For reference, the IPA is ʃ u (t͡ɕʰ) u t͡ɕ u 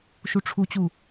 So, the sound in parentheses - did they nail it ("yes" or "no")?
no